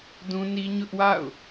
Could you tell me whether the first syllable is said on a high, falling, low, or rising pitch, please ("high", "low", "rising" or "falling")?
high